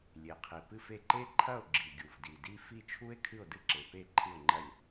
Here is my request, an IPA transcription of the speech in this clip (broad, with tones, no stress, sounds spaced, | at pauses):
lʲ e˨˩ qʰ i˨˩ p ɨ˥˨ f e˥˨ ǃ e˥ ǃʰ ɐ˥˨ o̯ ɡ͡ǁ i˨˩ ɡʲ u˨˩ v d i˨˩ d i˥ f i˥˨ t͡ʃʰ u˥ e̯ kʰ ɨ˥˨ o̯ d ɨ˥ ǁ e˨˩ p e˥˨ ǃʰ ɨ˥˨ o̯ ŋ͡ǃ ɐ˥˨ lʲ